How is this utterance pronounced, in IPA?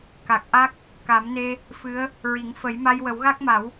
k a˨˩ k̚ ʔ a˦˥ k̚ | k a˨˩˦ m n e˧ | f ɨ˧˥ ə̯ | ɹ i˨˩˦ ŋ f ə˨˩˦ j m a˧ j w ə˨˩˦ w ɣ a˦˥ k̚ m a˨˩˦ w

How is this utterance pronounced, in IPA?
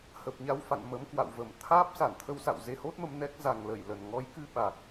h ə˨˩ p̚ ɲ a˧ w f a̰˧˨ n m ə˨˦ m k w a̰˧˨ w v ə˧˩ m t̪ʰ aː˦˥ p̚ s a˧˩ n t̪ʰ ə˧ w s a̰˧˨ w z e˧ h o˦˥ t̚ m ə˧ m n ɛ˦˥ k̚ z a˨˩ ŋ l ə˧˩ j l ə˨˩ n ŋ ɔ˨˦ j k ɨ˧ ɓ a˨˩ k̚

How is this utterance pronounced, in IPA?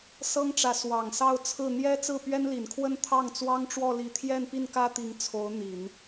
s ɤ˥ ŋ ʈ͡ʂ ä˧˥ s w ɑ˨˩ ŋ s ɑ˥˧ ʊ̯ t͡sʰ ɹ̩˥˩ n̪ j ɛ˥ t͡s ɹ̩˥˩ p ɥ ɛ˥ n l i˨˩ n kʰ w ə˥˧ n t̪ʰ ɑ˥˩ ŋ t͡s w ɑ˥ ŋ ʈ͡ʂ w ɔ˥˧ l i˥˧ t̪ʰ j ɛ˥˧ n p i˥˩ n k ä˥ t̪ i˧˥ ŋ t͡sʰ o˧˥ ʊ̯ n̪ i˨˩˦ n

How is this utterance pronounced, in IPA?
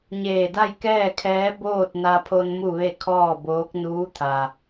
ɲ eː˧˩ d a˥˨ j k ɛː˥˨ kʰ ɛː˧˥ b oː˥˨ t̚ n a˧ pʰ o˧ n m u˥˨ ʋ e˥˨ kʰ ɔː˥˨ b oː˧˥ k̚ n uː˧˥ t̪ʰ a˩

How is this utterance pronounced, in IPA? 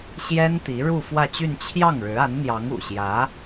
ɕ j ɛ˥ n t̪ i˧˥ ɻ u˥˧ f w ä˥˧ t͡ɕ y˥˧ n t͡ɕʰ j ɑ˥˩ ŋ ɻ ɻ̩˧˥ a˧˥ n n̪ j ɑ˧˥ ŋ ṵ˨˩ ɕ j ä˧˥

